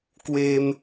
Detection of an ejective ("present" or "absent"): absent